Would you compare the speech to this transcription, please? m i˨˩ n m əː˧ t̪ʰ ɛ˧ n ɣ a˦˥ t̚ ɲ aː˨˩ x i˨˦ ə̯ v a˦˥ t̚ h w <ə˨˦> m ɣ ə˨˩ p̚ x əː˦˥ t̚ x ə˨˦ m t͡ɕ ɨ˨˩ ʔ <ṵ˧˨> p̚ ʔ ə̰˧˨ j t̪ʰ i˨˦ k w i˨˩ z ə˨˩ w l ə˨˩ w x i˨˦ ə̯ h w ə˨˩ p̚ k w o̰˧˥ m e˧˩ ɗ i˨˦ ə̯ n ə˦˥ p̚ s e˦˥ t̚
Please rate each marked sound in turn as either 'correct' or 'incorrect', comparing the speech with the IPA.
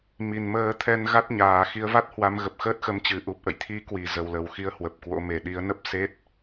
incorrect, incorrect

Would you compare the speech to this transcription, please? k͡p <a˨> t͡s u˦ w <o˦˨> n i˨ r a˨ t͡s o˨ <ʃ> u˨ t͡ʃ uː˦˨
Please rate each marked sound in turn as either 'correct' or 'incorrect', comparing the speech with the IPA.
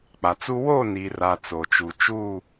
correct, correct, incorrect

